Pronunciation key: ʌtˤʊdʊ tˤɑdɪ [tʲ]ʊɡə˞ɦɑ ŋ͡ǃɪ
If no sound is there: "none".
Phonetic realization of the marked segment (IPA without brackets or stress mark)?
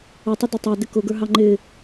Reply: k